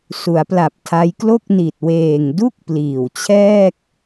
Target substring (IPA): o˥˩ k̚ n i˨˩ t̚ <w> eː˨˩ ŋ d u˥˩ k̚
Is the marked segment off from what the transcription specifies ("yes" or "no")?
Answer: no